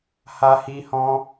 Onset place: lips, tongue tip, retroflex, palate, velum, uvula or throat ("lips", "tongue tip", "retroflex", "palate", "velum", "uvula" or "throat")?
throat